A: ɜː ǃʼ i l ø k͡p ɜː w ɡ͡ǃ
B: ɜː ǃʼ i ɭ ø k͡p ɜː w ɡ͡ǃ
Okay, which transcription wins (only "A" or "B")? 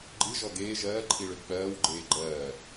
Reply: B